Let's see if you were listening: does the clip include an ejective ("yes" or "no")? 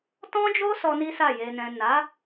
no